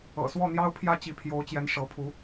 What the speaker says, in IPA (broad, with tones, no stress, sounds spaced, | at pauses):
ɤ̰˨˩ s w ɔ˥˩ n̪ j ɑ˥ ʊ̯ pʰ j ä˥˩ t͡ɕ i˧˥ pʰ j o˧˥ ʊ̯ t͡ɕ j ɛ˧˥ n ʂ ɤ˧˥ pʰ u˧˥